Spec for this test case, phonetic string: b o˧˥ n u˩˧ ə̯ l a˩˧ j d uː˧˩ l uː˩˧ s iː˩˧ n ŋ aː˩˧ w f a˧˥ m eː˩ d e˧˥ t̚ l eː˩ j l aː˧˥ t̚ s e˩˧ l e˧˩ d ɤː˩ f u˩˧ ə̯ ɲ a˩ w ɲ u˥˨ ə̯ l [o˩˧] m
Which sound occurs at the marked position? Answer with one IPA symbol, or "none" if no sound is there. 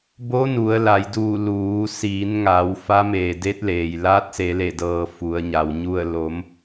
o˩˧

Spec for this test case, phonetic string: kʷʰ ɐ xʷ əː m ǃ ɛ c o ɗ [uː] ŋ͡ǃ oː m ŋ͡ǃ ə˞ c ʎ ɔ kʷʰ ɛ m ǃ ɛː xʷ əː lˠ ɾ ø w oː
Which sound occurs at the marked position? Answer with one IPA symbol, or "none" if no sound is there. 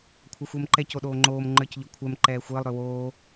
oː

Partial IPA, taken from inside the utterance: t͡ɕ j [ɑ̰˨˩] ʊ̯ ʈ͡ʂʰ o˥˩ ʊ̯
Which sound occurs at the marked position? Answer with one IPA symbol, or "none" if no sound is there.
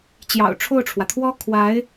ɑ̰˨˩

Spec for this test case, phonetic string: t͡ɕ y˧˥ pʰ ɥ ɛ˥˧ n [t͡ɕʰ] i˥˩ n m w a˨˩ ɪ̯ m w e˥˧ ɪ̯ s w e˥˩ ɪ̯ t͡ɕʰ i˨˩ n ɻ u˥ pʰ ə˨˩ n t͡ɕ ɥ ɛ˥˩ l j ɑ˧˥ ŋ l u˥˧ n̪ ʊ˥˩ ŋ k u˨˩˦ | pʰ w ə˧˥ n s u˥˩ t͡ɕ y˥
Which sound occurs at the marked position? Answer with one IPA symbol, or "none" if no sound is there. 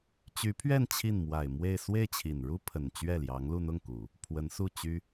t͡ɕʰ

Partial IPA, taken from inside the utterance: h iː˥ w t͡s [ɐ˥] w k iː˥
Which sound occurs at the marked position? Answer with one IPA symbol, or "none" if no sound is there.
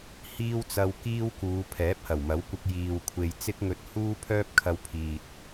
ɐ˧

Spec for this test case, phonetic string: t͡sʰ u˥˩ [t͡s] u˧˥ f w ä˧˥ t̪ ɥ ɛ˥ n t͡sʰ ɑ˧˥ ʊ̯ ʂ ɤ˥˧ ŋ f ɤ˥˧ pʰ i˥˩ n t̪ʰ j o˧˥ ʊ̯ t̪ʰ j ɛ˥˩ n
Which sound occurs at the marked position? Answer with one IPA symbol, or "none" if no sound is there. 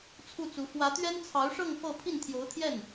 t͡s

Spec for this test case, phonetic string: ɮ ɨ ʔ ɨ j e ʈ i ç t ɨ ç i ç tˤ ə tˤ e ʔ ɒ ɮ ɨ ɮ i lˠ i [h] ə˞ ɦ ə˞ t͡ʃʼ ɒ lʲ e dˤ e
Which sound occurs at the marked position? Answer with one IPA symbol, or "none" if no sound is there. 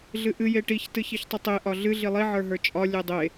ʕ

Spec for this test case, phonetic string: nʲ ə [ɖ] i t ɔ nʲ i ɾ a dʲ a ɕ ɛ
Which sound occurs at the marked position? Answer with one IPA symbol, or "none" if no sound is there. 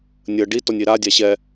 ɖ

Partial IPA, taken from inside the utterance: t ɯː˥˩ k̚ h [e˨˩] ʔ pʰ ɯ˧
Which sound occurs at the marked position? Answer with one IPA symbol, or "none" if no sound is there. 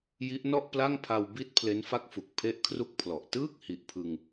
i˨˩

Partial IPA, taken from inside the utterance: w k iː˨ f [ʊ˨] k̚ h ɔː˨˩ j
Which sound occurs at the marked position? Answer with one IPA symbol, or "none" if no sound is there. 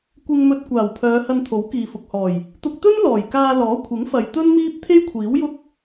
ʊ˨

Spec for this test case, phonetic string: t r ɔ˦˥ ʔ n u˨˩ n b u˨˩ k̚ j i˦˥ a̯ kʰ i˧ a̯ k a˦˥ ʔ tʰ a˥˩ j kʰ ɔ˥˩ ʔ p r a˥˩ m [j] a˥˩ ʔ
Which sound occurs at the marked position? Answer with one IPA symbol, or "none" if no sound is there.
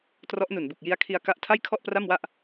w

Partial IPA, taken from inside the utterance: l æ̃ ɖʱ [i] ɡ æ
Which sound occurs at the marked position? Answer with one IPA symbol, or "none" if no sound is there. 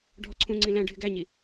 ɪ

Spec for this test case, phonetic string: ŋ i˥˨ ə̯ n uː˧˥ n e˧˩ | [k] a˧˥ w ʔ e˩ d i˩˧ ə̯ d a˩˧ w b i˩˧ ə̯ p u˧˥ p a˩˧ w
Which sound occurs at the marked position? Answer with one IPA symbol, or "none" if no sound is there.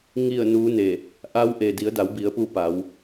ʔ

